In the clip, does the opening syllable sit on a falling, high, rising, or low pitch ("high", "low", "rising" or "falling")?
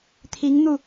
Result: rising